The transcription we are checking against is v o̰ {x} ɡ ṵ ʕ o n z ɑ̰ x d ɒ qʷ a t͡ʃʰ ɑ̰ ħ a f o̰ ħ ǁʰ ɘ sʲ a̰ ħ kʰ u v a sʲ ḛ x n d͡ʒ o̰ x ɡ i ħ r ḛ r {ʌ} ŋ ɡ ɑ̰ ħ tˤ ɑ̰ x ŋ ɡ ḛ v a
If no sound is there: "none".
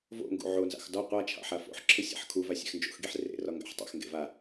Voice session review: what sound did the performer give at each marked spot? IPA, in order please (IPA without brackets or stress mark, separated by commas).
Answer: ŋ, ɒ